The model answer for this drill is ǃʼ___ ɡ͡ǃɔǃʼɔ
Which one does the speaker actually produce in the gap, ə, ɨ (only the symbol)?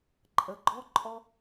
ə